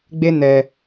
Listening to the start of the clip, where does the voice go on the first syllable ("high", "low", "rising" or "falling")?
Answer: high